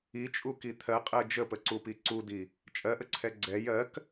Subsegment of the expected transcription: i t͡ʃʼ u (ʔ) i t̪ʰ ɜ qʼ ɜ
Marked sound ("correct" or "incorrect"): incorrect